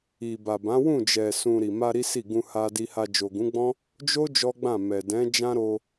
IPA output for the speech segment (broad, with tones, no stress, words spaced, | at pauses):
i˨ba˨bã˨˦ wũ˦˨d͡ʒɛ˨sũ˨ ɾi˨ma˧ ɾi˦si˦˨ ɡũ˧ ha˧di˧ha˧ d͡ʒo˨ɡũ˨˦ɡ͡bɔ̃˦ | d͡ʒo˦ d͡ʒɔ˦ɡ͡bã˦˨mɛ˨ dɛ̃˨˦d͡ʒã˦ ɾo˧